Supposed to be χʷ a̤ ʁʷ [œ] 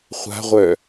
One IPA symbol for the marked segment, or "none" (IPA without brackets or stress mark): œ